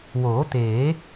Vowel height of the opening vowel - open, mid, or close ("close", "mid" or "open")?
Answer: mid